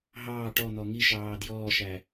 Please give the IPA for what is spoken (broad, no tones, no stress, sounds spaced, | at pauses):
ɦ ɑː ʈ ɔ n̪ ɔ ŋ i ʃ ɑː d j ɔː ʃ æ